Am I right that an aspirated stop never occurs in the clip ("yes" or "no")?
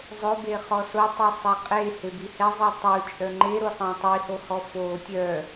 yes